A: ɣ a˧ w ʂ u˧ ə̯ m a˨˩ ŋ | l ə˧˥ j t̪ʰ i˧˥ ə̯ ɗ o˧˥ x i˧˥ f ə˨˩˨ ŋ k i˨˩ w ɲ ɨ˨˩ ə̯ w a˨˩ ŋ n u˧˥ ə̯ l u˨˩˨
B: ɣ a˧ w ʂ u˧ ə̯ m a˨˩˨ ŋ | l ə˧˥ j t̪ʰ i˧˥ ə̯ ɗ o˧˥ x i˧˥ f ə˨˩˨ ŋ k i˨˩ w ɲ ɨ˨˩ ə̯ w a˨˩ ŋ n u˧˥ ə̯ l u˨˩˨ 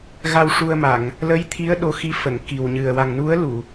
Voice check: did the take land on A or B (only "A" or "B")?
B